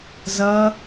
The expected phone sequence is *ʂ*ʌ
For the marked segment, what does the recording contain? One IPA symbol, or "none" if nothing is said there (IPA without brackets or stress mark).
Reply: z